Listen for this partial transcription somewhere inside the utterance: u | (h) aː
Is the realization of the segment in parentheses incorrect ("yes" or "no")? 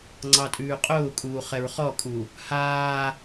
no